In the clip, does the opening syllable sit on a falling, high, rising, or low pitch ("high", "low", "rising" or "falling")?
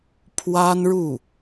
high